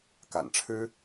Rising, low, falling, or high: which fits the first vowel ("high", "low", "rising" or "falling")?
low